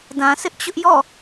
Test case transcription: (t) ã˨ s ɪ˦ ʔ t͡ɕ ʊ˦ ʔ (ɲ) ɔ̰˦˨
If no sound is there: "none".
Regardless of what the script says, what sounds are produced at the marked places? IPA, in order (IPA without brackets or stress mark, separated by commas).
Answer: d, j